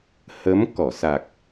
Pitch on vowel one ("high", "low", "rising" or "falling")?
rising